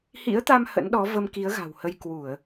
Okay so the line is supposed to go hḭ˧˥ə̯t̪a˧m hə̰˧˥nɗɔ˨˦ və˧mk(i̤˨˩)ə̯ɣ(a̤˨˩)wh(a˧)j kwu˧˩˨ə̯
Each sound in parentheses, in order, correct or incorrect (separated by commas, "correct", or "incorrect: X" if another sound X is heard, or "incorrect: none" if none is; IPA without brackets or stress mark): incorrect: i˨˦, correct, incorrect: ə˧